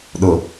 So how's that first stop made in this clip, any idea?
implosive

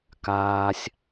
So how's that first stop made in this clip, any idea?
plain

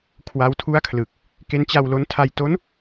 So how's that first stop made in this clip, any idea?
aspirated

